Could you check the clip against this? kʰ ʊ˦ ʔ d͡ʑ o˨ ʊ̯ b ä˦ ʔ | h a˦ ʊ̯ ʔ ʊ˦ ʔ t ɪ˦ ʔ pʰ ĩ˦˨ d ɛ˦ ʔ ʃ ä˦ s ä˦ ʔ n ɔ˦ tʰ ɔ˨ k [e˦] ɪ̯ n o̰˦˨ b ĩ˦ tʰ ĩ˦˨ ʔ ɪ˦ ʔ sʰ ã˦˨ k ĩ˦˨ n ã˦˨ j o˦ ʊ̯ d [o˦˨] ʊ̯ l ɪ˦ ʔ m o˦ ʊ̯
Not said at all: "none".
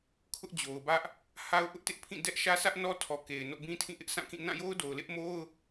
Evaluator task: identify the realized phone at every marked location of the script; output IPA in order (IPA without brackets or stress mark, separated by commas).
e˨, o˨